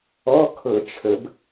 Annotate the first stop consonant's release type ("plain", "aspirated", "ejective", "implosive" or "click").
aspirated